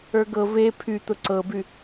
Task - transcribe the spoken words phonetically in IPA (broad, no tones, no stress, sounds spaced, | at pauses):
ə˞ ɡ ɤ v e pʰ y t̪ ʊ ǀ ɤ b y